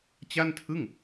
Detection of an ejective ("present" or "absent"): absent